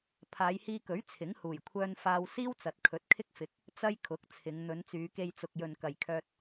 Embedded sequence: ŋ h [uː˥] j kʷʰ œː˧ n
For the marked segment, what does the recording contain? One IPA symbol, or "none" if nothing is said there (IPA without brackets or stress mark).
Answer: uː˨˩